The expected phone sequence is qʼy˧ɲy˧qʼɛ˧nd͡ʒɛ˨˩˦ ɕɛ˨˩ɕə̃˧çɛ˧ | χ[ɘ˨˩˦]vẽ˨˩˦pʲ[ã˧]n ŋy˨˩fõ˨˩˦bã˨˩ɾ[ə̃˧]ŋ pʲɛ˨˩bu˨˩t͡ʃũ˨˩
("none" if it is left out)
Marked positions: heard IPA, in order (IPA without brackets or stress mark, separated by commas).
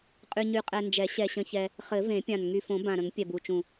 ɘ˨˩˦, ã˨˩, ə̃˨˩˦